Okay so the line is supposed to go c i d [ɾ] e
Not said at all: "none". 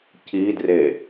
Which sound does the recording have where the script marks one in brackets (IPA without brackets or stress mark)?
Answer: r